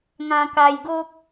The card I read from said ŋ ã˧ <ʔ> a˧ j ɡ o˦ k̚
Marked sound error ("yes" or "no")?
yes